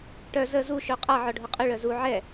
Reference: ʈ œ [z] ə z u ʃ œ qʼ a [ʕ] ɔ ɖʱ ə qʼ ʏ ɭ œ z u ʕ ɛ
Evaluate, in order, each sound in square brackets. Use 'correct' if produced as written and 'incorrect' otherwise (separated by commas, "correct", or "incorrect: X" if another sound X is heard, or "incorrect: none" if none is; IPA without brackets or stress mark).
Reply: correct, correct